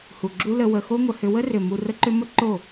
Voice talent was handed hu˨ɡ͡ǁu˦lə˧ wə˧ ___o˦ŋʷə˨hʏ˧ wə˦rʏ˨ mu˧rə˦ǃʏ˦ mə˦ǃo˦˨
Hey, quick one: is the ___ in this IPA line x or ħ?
x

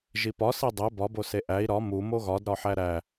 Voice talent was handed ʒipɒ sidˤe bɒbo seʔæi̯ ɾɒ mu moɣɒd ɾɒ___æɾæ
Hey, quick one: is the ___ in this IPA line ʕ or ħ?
ħ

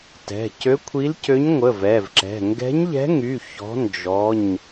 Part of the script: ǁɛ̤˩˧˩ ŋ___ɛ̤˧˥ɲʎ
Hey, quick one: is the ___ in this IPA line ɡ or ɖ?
ɡ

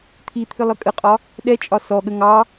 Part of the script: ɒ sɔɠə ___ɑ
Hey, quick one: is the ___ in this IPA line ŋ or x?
ŋ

